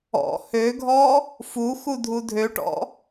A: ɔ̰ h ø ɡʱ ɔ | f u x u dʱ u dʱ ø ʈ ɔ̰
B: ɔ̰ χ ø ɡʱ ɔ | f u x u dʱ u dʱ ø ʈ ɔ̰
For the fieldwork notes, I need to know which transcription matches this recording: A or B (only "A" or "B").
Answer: A